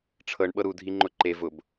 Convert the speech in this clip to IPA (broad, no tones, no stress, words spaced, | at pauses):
ʈ͡ʂʰɤɳ ɓɤɾu dʱiŋ͡ǃʊǃe vʊb